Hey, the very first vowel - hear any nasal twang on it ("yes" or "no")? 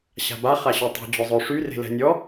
no